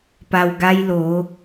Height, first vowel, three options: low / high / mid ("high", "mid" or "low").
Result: low